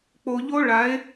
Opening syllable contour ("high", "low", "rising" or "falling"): low